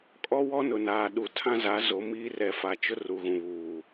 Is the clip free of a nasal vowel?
no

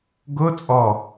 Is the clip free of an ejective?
no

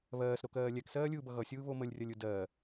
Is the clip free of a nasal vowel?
yes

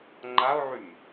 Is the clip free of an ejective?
yes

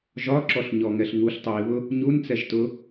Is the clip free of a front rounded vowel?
yes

